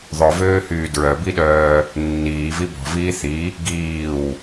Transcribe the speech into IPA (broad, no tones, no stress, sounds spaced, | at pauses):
ðˤ œ v øː h yː d ɹ œ b i ɗ œː | nː iː v i b ɔ̤ v iː θ i | ɡ iː w